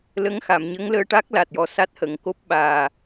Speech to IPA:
l ə˧˥ ŋ x a˨˩˨ m ɲ ə˧˥ ŋ l əː˧ ʈ a˦˥ k̚ l a˨˩ t̚ j ɔ˨˩ s a˦˥ t̚ h ə˨˩˨ ŋ k o˦˥ p̚ ɓ aː˨˩

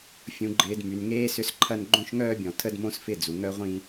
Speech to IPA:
fʲ ũ˨ ɡ͡ǃ ɪː˨ d m y˨ n ŋ eː˦ s ʏ˦ s ǃʰ ɐ˦ n ɡ͡ǃ õ˦ ʃ ŋ œː˦ bʲ ɔ̃˨ tʰ ə˦ d m õ˦ s f ɪ˦˨ d͡z u˨ ŋ œ˦ ʁʷ ĩ˦

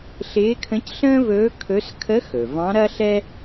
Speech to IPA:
ɬ ɪː˧˥ kʰ ə̃˧˥ c ɬ ə̃ː˥ v ɵː˧˥ kʰ ɵ˧˥ s kʰ ə˧˥ x ɵ˩ v ɑ̃˧˥ ɾ ɐ˥ ɬ ɛ˥

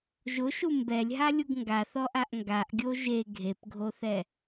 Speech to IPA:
ʒ ʊ ʃ u m b ɛ lʲ ɦ a lʲ u ɡ ŋ ɡ a θ ɔ ʔ a ʔ ŋ ɡ a ʔ ɡʲ o ʒ e ɡʱ e p ɡʱ o θ ɛ

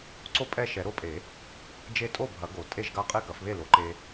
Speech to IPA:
ǀ o˥˨ pʼ ɛ˥˨ ʃ ɛ˨˩˦ ɾ o˦ pʼ e˨˩˦ | d͡ʒ e˦ tʼ o˥˨ bʱ ɐ˨˩˦ ɡ o˨˩˦ tʼ e˥˨ ʒ ɡ a˥˨ qʼ e˥˨ k ɐ˨˩˦ f β e˥˨ l o˨˩˦ ǃ e˦

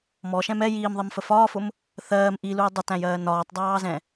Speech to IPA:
m ɔ ʃ ɛ̃ m ɛ j iː m ðˤ i m f ə f ɒː f ʊ m | θ ɜː m ʔ i l u j dˤ ʊ t æ̃ j ɜː n ɒː tˤ dˤ ɑː z ɛ̃

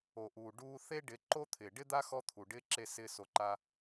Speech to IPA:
o˨ ʔ uː˨ ɖ uː˧ θ e˦ ɖ ɪ˨˦ ǃ o˦ t̪ʰ ɪː˨ ɖ ɪ˦ d̪ a˦ x ɔ˦ t̪ʰ u˨ ɖ ɪː˦ ǁ e˦˨ s ɪː˦ s o˧ ǃ a˦

